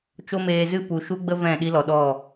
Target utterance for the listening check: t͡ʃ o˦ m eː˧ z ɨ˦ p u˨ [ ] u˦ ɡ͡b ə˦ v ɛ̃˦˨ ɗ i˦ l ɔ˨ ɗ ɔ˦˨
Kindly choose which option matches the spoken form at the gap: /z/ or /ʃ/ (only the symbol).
ʃ